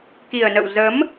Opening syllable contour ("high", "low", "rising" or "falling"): low